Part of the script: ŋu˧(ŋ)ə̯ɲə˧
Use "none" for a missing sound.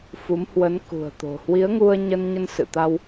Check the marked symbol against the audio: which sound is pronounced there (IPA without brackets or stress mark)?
none